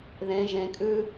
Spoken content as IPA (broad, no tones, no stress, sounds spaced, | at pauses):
ð ẽ ʒ ẽ kʼ ʉ